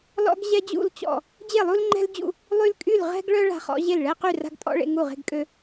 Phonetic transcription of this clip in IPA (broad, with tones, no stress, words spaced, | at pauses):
lɔ̰˦ɡʑɛ˦d͡ʑṵ˦˨lt͡ɕɔ̰˦˨ | d͡ʑe˦˨lˠu˦lŋ͡ǃɛ̤˦ld͡ʑṵ˦˨ | lˠy˦lkʼy˦˨l ʁɛ̤˦ɡɭœ˦ ɭa̤˦χɔ̰˦ ʑe˦˨lɭɛ˦ qy˦˨ra̤˦ɡtʼɔ̰˦ ɭḛ˦ŋu˦˨ʁe̤˦ɡkʼø˦